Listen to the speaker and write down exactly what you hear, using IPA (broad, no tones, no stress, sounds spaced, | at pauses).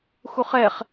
x u χ ɛ χ